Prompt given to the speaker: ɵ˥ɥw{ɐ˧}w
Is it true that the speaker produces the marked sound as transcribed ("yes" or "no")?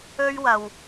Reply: yes